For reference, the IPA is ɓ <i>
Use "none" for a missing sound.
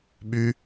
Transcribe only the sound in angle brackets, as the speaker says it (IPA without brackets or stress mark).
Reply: y